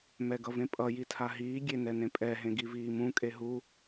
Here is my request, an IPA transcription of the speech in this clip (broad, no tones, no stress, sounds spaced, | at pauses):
m ɛ ɡ ʌ v ẽ pʼ ʌ j i tʰ a ɦ iː ɡʲ e n ɛ n ẽ pʼ ɛ ɦ ẽ ɡ i v iː m ũ kʼ e ɦ u